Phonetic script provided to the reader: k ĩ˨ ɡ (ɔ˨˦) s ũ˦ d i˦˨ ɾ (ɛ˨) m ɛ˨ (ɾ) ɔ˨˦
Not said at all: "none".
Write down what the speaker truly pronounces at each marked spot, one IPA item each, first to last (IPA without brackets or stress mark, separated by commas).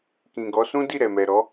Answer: ɔ˨˦, ɛ˨, ɾ